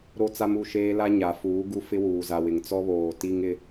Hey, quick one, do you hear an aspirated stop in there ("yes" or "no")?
no